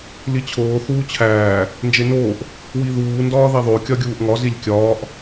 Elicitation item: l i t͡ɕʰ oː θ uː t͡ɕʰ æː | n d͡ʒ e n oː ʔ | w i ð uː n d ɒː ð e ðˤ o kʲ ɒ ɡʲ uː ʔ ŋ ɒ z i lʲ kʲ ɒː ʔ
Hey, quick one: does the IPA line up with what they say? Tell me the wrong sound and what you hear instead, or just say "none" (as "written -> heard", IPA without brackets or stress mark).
none